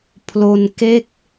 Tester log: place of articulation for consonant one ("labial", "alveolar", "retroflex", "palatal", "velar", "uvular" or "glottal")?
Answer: labial